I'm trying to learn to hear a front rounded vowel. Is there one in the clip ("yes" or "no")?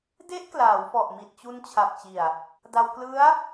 no